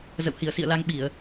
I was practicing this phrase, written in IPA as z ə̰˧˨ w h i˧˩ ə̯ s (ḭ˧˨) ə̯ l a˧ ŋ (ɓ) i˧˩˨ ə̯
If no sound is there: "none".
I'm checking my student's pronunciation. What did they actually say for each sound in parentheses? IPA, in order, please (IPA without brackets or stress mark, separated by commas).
ḭ˧˨, ɓ